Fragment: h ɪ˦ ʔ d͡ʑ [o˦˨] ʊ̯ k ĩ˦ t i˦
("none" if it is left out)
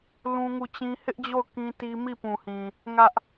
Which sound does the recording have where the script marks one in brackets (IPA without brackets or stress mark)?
o˦˨